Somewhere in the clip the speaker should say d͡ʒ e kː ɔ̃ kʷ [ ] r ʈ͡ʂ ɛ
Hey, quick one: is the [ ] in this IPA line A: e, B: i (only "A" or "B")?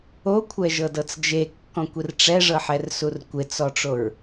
B